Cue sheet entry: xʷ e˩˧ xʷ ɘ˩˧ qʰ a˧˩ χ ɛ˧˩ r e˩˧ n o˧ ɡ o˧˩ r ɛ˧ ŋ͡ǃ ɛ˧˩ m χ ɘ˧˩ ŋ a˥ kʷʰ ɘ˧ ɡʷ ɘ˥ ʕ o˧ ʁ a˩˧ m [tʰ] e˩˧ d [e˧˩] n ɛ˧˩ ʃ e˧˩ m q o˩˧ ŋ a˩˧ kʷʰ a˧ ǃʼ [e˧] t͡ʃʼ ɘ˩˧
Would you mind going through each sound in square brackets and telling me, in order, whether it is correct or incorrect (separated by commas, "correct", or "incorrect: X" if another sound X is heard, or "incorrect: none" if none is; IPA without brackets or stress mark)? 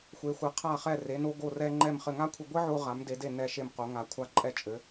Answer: incorrect: d, correct, incorrect: ɛ˧